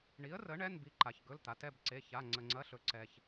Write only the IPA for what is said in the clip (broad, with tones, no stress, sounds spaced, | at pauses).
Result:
ɳ i˨˥ ə̯ r ə˨˥ ɳ ɛ˧˥˧ n b i˧ ǃ a˧ ç ɡ ɵ˧˥˧ l t̪ a˨˥ t ɛ˧˥˧ b ǀ e˧˥˧ ç a˧˥˧ ŋ͡ǀ ə˧ ŋ͡ǀ ɐ˧˥˧ ɬ ɵ˧ ǀ ɛ˧ ç